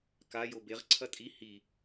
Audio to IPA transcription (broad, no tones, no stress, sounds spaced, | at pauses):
k a j o b e ʁ ǀʰ ɐ tʼ i h i